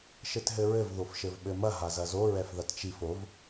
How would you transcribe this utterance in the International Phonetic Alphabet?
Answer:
ʃ ɘ t ɦ ɘ ɹ ɘ v ð o f ʃ ɘ v ɓ ɘ m ɐ ɦ a z ɐ z o ɹ ɛ f ð ɐ t t͡ʃ i f o v

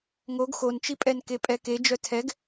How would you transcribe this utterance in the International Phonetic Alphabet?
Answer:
ŋ o ɡ x o n t͡ʃ i pʼ ɛ n k e pʼ ɛ k e d͡ʒ œ tʰ ɛ ɡ

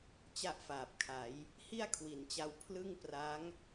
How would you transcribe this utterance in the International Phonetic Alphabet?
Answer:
t͡ɕ a˥˩ ʔ f aː˨˩ p̚ kʰ a˩˦ j | h i˥˩ a̯ kʰ w i˩˦ n t͡ɕ a˧ w pʰ l ɯ˥˩ ŋ p r a˦˥ ŋ

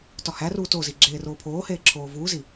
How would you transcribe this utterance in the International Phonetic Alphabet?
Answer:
t ɒ h æ r uː t o z i ɡ͡ǁ eː r oː pʰ oː h eː ǁʰ oː v uː z i

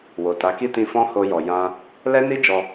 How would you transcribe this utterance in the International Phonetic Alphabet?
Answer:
w o˨ t a˨˦ k i˦ t ĩ˧ f ɔ̃˦ h o˧ j ɔ˨ j ã˧ | l ɛ˦ n i˦ d͡ʒ ɔ˧

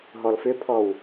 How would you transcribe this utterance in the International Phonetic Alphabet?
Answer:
ɦ ɔ l f ʏ pʰ ɔ w

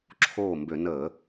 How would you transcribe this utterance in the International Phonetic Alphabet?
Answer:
ǁʰ oː˥˩ m b ø˧˩˧ n əː˧˩˧

